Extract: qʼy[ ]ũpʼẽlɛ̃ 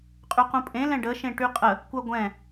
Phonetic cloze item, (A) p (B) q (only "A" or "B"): B